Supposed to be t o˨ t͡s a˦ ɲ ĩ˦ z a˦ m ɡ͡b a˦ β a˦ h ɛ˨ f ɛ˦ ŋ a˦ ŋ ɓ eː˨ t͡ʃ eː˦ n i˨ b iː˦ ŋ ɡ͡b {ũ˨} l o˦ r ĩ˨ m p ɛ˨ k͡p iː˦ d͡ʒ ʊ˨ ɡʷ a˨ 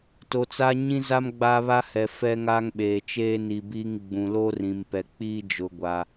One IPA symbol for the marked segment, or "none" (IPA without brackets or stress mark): ũ˨